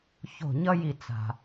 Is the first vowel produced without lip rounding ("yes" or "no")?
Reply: no